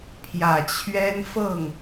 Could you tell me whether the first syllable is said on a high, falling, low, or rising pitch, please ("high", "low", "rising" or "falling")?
low